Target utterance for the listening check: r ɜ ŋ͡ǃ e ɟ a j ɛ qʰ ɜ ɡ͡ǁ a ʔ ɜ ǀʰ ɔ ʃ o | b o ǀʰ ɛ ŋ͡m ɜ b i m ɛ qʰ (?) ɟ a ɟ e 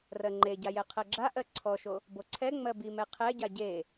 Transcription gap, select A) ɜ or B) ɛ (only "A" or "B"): B